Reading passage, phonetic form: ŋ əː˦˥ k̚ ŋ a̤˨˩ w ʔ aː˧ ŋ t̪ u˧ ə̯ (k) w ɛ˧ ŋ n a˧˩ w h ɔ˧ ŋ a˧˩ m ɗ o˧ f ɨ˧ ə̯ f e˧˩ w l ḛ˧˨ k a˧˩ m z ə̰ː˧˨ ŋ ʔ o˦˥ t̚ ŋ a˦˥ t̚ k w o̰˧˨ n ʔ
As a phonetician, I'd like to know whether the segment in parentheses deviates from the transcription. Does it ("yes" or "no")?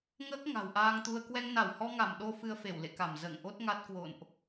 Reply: no